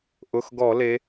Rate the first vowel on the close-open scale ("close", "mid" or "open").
close